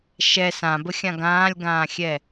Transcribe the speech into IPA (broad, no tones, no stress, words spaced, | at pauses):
ʃɛ sãbəxʲã ɡãːlʲɡãːxʲɛ